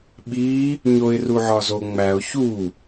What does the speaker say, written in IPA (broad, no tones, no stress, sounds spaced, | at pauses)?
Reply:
ɓ i | ɲ o ɪ̯ r u ʕ ɒ z o ŋ͡m æ ʊ̯ ç u